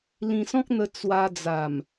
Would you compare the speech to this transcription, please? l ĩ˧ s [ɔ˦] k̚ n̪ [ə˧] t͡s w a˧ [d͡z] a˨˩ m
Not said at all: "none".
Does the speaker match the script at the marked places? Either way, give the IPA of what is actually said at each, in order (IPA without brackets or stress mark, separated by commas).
ɔ̃˦, ə˧, d͡z